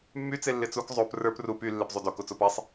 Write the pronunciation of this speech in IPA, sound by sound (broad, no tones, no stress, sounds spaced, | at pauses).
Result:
mː y t͡s e lː ɪ t͡s u k zˤ o p r ə˞ p r u p y lː e p zˤ u d o k o t͡s o p a sˤ